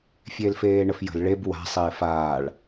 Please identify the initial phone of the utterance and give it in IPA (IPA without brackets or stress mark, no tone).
fʲ